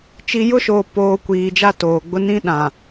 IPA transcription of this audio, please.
t͡ʃ i˨ j ʊ˦ ʃ oː˨ p oː˨ kʷ iː˨ d͡ʒ a˦ t oː˨ ɡ͡b ʊ˦ n ĩ˦ ɗ ã˨

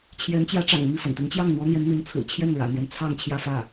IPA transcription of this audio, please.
t͡ɕʰ j ɛ˧˥ n t͡ɕ j ä˧˥ ʈ͡ʂ ɑ̰˨˩ ŋ m i˥˩ f ə̰˨˩ n t̪ i˧˥ ŋ t͡ɕ j ɑ˥˩ ŋ n̪ w ɔ˥ n̪ j ɛ˧˥ n n̪ i˧˥ n t͡sʰ ɹ̩˨˩ t͡ɕʰ j ɛ˥˩ n ɻ ä̰˨˩ n̪ j ɛ˦ n t͡sʰ ɑ˥˧ ŋ t͡ɕʰ j ä˥˧ f ä˥˩

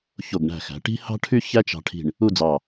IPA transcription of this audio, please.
ç o˧˩ ɡ ɳ æ̤˧˩ x æ̤˩˧ ʈ i̤˥ h ɑ̤˥ ʈʰ y˥ ç æ˥ t͡ʃ ɑ̤˧ ʈʰ i̤˧˩ ɳ | u˥˧ d͡z ɑ˧˩

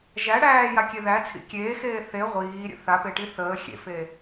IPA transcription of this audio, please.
ʒ æ ɽ æː j a kʲ e ð æ t͡sʰ ḭ kʲ eː x eː θ e ʁʷ iː ɾʲ ə̰ θ a p e ʈ i θ əː xʲ ḛ f e

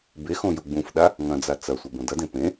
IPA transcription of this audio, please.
b e x õ j u ɡ͡b ũ f ɗ a | ŋ ɐ̃ d͡z a t͡s ɐ sʷ ɐ b õ d ɐ d ẽ p ẽ

